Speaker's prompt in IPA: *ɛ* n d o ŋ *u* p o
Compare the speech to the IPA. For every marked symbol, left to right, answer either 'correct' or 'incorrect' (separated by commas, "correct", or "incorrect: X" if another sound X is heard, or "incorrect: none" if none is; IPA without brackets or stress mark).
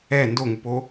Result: correct, correct